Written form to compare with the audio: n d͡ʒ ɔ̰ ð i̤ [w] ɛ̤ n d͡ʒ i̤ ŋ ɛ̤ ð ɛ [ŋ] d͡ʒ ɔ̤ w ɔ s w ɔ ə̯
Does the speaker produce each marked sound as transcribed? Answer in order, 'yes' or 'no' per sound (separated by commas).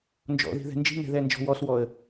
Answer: no, no